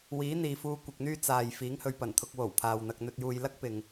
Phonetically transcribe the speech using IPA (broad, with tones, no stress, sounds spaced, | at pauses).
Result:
w iː˨˥ n̪ iː˨ f uː˧ kʷ ɪ˨ k̚ n̪ yː˥ t͡s aː˨ j f iː˨˥ ŋ h ɵ˨˧ ɥ p ɐ˨˩ n t̪ʰ ʊ˧ k̚ w o˨˩ w pʰ aː˨ w n̪ ɐ˧ k̚ n̪ ɵ˧ t̚ j uː˧ j l ɐ˥ k̚ p ɪ˨ ŋ